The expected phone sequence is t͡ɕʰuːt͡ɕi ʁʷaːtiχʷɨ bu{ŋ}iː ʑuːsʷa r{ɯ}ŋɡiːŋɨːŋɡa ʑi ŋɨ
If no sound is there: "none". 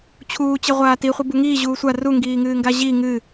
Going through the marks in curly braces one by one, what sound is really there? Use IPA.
ŋ, u

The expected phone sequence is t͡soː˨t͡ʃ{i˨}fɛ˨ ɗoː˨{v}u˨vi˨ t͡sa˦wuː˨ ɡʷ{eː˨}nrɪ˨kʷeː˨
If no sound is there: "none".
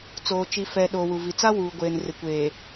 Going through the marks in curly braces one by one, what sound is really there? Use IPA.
i˨, w, eː˨

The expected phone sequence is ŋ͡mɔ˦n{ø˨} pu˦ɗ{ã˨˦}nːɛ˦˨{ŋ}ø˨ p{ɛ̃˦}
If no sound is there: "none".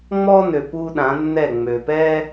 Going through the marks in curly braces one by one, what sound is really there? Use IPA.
ø˨, ã˨˦, ŋ͡m, ɛ˦

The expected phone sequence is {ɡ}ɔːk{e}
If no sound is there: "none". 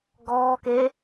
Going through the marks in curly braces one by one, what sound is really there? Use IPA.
ɡ, e

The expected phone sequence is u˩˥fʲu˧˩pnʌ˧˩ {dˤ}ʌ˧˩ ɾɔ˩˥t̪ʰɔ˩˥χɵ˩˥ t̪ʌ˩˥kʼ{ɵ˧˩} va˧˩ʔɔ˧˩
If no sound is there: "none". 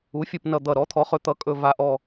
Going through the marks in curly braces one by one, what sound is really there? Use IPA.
d̪, ɵ˧˩

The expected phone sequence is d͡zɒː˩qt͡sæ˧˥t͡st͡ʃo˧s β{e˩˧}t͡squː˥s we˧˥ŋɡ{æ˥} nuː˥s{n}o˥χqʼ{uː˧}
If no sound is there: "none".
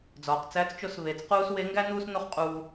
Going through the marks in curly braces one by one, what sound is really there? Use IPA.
e˩˧, æ˥, n, uː˧

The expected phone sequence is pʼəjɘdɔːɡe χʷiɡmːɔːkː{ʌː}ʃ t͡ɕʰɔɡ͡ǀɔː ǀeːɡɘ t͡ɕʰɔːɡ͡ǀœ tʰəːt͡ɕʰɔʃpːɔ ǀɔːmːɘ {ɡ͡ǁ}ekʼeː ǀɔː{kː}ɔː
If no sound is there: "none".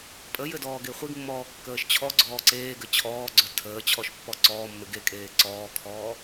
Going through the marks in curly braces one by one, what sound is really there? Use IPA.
əː, ɡ, kʰ

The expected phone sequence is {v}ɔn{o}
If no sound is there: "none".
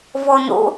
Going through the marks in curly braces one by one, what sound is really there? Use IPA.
v, o̰

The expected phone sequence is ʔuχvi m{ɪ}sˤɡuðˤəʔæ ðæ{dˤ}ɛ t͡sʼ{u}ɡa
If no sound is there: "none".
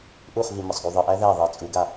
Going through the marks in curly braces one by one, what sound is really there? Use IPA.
ə, ðˤ, u

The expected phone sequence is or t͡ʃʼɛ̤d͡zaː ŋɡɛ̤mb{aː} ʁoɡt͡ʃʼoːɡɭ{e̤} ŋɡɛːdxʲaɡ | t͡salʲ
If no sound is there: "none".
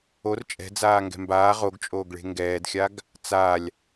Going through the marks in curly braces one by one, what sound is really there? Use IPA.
aː, e̤

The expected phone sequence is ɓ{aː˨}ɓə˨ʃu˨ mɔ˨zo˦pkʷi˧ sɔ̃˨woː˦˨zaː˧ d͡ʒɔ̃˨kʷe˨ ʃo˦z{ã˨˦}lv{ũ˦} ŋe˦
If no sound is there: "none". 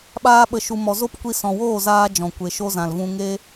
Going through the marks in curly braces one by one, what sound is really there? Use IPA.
aː˧, ã˨, ũ˦

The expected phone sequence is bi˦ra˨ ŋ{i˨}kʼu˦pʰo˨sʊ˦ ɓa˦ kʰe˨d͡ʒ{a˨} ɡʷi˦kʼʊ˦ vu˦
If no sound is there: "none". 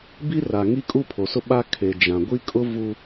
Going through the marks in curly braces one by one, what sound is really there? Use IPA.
i˦, ã˨

